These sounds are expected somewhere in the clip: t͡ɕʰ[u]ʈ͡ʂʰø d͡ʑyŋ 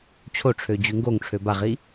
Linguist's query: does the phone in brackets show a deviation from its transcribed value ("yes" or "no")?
yes